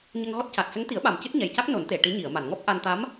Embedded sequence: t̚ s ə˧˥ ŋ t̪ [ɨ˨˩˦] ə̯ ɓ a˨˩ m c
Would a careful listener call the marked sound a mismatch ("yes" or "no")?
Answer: yes